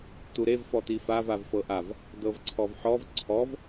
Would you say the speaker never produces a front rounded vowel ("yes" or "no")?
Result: yes